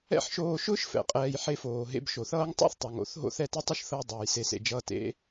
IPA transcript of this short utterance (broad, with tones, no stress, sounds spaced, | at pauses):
ɛ̰˦˨ ħ ʃ oː˧ ʃ ʊː˦ ʃ f ɛ̰˨ qʼ ɛː˧ j ħ e˦ f oː˨ ɦ ḛ˧ b ʃ o˨ θ ʌː˦ ŋ tˤ o̰˦ θ tˤ o˨ ŋ o̰˨˦ θ ɦ o̰˦ θ ɛ˧ t ɛ˦ tˤ ʊ˦ ʃ θ ɤ˧ j dˤ ʊː˨ j s e˧ s ḛ˧ d͡ʒ ʌː˦ t ḛ˦